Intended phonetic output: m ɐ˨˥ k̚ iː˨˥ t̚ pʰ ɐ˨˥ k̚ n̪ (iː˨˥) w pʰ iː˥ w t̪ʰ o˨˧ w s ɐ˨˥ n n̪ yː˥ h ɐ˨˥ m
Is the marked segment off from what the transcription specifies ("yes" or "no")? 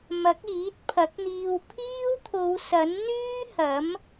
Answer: yes